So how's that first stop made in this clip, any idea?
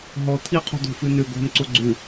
aspirated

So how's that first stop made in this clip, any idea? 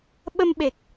implosive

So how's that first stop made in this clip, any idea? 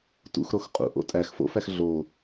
plain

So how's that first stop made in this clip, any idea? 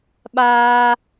implosive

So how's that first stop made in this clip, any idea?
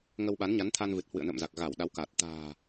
implosive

